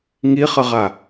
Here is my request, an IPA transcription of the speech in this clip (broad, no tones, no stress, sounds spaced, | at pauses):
ŋ i χ ə ʁ a